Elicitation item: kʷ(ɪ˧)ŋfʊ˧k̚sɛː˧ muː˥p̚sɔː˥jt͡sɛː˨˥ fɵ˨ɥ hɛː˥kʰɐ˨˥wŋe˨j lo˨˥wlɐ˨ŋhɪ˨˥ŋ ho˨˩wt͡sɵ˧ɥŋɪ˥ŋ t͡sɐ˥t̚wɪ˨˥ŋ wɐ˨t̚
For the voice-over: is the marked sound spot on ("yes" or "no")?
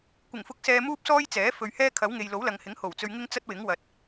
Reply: no